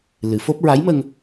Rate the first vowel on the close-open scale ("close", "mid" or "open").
close